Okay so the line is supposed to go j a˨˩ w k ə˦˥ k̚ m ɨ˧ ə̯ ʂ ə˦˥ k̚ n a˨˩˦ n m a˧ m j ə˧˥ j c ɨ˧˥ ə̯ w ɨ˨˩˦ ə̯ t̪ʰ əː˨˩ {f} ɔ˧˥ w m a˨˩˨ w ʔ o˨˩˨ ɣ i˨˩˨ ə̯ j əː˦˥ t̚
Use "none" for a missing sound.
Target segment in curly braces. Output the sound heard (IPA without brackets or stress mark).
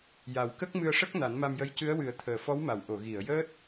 f